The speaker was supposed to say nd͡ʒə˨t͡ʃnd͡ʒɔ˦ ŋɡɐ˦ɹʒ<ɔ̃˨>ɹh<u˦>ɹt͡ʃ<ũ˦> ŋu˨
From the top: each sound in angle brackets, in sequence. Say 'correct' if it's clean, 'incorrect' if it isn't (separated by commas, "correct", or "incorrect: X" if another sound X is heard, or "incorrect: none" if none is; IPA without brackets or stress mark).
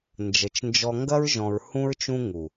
correct, incorrect: ũ˦, correct